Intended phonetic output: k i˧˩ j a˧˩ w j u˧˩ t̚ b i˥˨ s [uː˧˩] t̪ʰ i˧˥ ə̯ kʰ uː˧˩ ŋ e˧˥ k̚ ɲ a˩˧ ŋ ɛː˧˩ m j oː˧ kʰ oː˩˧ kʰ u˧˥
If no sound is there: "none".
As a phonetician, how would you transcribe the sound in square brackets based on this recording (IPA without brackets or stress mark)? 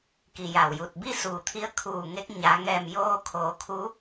uː˩